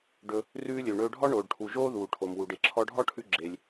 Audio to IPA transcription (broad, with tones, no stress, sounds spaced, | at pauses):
ɖ ɵ˧ | r ʉː˧ lʲ ø˩ ɳ ɵː˧ ɖʱ ɔ˥ ɳ oː˩ ɖ ʈʰ u˩ ʒ oː˥ ð uː˩ ʈʰ o˩ m w u˩ ɖ e˩ ǁʰ ɔ˧ ɖʱ ɔ˥ ʈʰ ʉ˧ ɡ͡ǁ e˩ lʲ